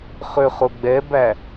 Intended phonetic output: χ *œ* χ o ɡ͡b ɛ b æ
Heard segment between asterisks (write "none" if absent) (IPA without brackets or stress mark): ø